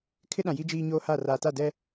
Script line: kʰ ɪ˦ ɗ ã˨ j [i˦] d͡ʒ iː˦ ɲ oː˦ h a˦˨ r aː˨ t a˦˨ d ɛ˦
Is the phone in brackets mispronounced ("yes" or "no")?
no